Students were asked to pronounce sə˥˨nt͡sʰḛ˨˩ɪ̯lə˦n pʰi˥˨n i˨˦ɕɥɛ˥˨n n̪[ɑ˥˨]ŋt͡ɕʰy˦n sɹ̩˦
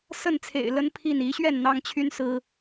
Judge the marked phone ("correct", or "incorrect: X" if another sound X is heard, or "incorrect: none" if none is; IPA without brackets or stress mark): incorrect: ɑ˦